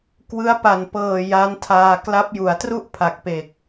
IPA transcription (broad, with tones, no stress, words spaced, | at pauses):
kwɯ˦˥a̯pa˨˩npɤː˨˩ ja˦˥ntʰaː˧ kla˦˥p̚ju˩˦a̯tru˥˩ʔ pʰa˨˩k̚pe˨˩k̚